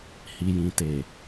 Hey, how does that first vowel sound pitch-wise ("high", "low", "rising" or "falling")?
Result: low